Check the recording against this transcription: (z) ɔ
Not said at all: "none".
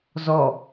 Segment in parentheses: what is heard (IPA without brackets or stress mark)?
z